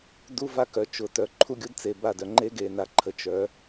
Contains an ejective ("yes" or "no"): no